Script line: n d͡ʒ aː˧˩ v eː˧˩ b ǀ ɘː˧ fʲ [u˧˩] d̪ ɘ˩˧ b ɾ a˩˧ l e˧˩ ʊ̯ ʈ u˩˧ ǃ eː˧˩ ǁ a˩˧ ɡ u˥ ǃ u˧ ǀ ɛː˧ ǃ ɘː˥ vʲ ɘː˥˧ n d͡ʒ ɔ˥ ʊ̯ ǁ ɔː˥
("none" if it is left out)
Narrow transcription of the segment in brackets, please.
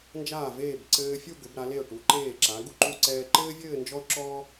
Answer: u˥˧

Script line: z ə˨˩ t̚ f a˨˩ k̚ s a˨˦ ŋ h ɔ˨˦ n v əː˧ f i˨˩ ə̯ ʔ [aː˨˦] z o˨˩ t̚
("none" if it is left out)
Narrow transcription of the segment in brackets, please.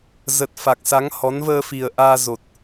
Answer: aː˧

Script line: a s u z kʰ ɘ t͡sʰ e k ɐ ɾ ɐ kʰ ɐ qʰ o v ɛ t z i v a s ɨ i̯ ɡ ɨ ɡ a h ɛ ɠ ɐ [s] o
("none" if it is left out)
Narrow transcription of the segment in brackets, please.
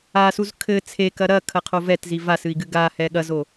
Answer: z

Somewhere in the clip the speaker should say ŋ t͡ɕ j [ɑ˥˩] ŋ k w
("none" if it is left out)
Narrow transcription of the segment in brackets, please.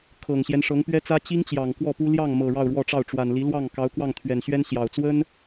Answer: ɑ˨˩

